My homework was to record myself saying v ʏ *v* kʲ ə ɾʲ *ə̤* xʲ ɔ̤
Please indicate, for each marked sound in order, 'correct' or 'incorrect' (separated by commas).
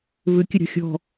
incorrect, incorrect